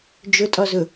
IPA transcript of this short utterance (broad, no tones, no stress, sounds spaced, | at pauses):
d͡ʒ ʊ tʼ ɔ z ʊ